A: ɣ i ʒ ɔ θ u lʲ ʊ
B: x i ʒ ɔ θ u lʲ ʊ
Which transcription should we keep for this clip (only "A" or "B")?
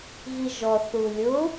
A